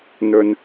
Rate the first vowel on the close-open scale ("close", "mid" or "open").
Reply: mid